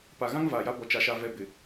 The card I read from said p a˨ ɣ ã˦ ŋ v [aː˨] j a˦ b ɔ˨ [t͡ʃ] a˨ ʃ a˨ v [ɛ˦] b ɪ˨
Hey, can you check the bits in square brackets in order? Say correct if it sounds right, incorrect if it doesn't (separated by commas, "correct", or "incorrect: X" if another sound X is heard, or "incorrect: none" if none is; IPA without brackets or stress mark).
correct, correct, incorrect: ɛ˨